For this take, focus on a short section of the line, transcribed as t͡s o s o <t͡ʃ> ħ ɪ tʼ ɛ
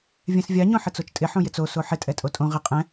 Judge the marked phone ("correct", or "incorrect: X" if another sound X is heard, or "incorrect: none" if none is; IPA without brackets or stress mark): incorrect: none